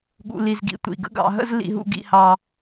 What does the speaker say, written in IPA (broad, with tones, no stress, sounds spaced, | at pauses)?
ɠ ṵ˨ l i˨ z ɡ ḭ˨ tʷ ḭ˨ ɡ ə̰˦ ɡ ɑ̰˧ ɦ ə̰˦ z l ḭ˧ ɦ ṵ˧ ɡ ḭ˧ h ɑ˧